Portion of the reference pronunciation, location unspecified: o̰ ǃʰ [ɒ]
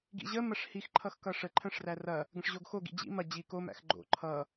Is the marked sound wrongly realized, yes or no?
yes